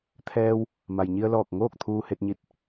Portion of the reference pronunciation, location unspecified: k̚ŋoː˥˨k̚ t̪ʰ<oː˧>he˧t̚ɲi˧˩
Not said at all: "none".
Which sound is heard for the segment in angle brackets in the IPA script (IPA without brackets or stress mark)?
uː˧